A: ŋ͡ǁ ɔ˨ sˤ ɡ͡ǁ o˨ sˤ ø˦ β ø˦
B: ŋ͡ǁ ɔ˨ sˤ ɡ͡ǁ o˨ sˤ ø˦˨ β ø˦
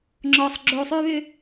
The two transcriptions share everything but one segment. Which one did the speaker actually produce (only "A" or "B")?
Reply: A